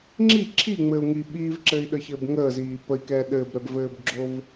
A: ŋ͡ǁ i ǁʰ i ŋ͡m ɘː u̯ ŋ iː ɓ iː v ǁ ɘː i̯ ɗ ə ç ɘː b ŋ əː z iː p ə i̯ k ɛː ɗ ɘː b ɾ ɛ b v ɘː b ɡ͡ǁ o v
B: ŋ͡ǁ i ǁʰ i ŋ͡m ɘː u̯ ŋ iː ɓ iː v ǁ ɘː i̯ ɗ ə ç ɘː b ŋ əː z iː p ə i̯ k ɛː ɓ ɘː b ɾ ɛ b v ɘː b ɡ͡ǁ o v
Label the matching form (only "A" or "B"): A